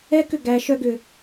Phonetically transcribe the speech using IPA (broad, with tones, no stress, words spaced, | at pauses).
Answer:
ɛ˧˥kʏ˩ ɡæ˩˧ ʃœ˧ɡʏ˩